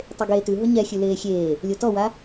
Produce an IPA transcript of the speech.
tˤ e ɡ eː t ʉ ɦ ʊ ɲ ɛ xʲ ʉ l eː xʲ eː | lʲ o t ɔ w a

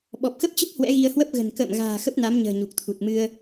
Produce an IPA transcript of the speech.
ɓ ɔ˨˩ p̚ x ə˦˥ p̚ t͡ɕ ə˦˥ p̚ h w ɛ̰˧˥ ɣ i˧ ə̯ h w ə˦˥ p̚ ɣ ə̤˨˩ n k ə̰ː˧˨ m ɣ a̤ː˨˩ x ə˦˥ p̚ n a˨˦ m ɲ ə̤ː˨˩ ɲ u˨˩ k̚ t̪ʰ u˨˩ t̚ m ɨ˧ ə̯

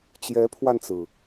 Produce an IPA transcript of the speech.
t͡ɕ j ɛ˧˥ pʰ w a˧ n t͡s ɹ̩˩

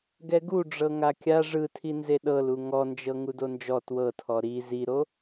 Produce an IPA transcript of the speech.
ɡ ɛ ɡ u ɖ͡ʐ ɤ ŋ a kʲ a ʐ ɯ tʰ i n z e ɗ ɤ l u ŋ ɔ n d͡ʒ ɤ ŋ u d o n d͡ʒ ɔ t w ɤ tʰ ɔ ɾ i z i ɾ o

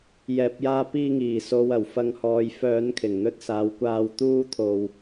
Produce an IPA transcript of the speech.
j ɛː˨ p̚ j aː˧ p iː˧ ŋ iː˨˩ s o˨ w ɐ˨˩ w f ɐ˨˧ ŋ h ɔː˨ j f œː˨˧ n kʰ ɪ˨˩ ŋ n̪ ɵ˧ t̚ s aː˨˧ w kʷ aː˧ w t̪ uː˥ t̪ʰ o˧ w

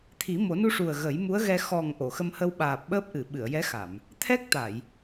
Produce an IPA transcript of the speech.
t̪ʰ i˨˩˦ m o˨˩˦ n u˧ ʂ u˨˩ ə̯ ɣ ə˨˩˦ j m u˧˥ ə̯ ɣ ɛ˧ x ɔ˨˩ ŋ ʔ o˨˩˨ x ə˧ m h ə˧ w ɓ aː˨˩ p̚ ɓ əː˦˥ p̚ ʔ ɨ˨˩˨ ɓ ɨ˨˩˨ ə̯ j ɛ˧˥ x a˨˩˨ m | t̪ʰ ɛ˦˥ k̚ t̪ a˨˩˨ j

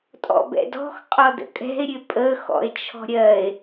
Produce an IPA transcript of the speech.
tʼ ɔ̰ b ɛ̰ d ɔ̤ x qʼ ɔ d ə̰ kʼ ɛ̤ e̯ ɾʲ ø pʼ ə x ɔ̰ e̯ t͡ʃʰ ɔ̤ ɾʲ ɜ e̯

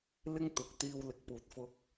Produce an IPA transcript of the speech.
l ɪ˥ ŋ t̪ ʊ˨˥ k̚ t̪ iː˧ w l ɪ˨ k̚ p uː˨ t̚ f ʊ˧ k̚

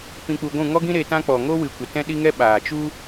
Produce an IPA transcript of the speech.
p ĩ˧ k͡p u˧ ɡʷ ũ˦˨ ŋ ɔ˦ ɡ ĩ˦ ɾ e˧ t ã˦ k͡p ɔ˨ ŋ o˦ w ɨ˨ kʷ ə˨ t ɛ̃˦ ɗ i˦ ŋ ɛ˦ ɓ aː˨ t͡ʃ u˦

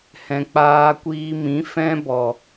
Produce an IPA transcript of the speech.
h ɛ̃˨ k͡p aː˧ kʷ iː˧ m ĩ˨˦ f ɛ̃˦ b ɔ˨

